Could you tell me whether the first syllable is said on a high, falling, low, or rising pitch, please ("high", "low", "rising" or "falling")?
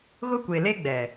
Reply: high